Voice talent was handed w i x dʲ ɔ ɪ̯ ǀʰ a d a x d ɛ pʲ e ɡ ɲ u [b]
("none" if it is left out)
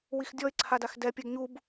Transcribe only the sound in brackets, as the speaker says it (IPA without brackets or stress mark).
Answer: b